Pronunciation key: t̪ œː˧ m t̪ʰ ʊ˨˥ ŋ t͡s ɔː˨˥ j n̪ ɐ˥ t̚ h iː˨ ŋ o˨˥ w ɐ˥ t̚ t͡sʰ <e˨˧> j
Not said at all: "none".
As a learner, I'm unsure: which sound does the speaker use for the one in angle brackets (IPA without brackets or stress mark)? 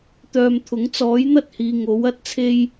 e˥